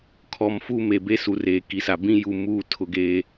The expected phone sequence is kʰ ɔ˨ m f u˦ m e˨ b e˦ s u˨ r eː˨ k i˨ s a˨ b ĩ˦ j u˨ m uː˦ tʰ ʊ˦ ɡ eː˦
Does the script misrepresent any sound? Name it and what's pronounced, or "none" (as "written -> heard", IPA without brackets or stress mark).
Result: none